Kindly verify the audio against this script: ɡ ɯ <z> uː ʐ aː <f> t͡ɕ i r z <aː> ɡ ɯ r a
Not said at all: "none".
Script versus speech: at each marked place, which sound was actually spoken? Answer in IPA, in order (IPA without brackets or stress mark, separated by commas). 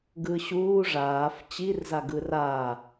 ɕ, f, a